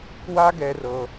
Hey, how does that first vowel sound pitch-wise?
high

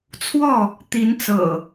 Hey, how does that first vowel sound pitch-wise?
falling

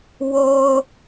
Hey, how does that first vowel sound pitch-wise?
low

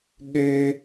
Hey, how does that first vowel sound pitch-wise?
high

